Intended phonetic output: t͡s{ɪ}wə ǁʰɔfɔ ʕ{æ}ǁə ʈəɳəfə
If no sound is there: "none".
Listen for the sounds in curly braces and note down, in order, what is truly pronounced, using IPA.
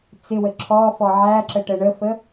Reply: ɪ, æ

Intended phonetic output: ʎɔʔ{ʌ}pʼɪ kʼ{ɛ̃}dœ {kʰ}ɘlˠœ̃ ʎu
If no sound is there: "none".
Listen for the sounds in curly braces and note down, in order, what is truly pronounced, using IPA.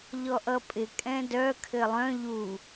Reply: ʌ, ɛ̃, kʰ

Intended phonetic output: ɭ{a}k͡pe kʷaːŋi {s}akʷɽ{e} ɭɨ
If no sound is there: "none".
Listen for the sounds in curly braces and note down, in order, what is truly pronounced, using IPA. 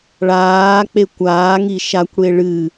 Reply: aː, ʃ, e

